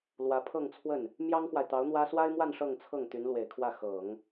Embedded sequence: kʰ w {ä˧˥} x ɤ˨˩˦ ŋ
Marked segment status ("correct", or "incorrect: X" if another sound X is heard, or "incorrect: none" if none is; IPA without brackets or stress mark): incorrect: ä˥˩